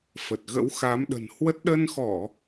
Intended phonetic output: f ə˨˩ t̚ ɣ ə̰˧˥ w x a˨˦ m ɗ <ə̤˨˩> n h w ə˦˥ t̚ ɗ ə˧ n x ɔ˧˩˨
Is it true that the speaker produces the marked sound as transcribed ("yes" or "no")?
yes